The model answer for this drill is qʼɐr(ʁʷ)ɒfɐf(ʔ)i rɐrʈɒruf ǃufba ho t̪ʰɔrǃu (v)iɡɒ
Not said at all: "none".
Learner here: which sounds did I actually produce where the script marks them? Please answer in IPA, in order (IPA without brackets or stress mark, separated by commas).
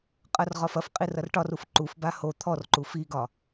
ʁ, qʼ, f